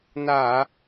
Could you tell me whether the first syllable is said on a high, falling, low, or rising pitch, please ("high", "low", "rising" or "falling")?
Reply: low